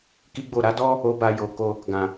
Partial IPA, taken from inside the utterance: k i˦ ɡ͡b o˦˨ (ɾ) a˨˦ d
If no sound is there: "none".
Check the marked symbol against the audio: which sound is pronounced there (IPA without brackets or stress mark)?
ɾ